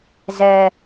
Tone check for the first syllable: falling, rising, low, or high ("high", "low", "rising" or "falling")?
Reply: low